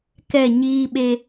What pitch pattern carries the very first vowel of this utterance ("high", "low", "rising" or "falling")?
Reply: falling